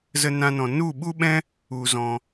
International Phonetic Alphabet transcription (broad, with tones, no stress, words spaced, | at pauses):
zə˦nã˦nɔ̃˧ nu˦˨ɓu˦ɓɛ̃˦ | u˦zɔ̃˦